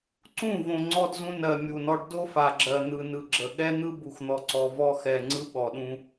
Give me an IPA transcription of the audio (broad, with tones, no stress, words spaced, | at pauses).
ǀũ˦˨võ˨ ŋ͡ǀɔ˦dzũ˦ nɜ˨ mʲu˨nɔ˦ɖ do˦fa˨ɡ͡ǁɜ˨ n̪ɯ˨ nɯ˨ɡ͡ǁə˨ ɠɛ˦n̪ɯ˦ bu˨xn̪ɔ˨ǀɔ˨ vɔ˦xɛ˨ ŋ͡ǀɯ˦ɓɔ˨ɗũ˦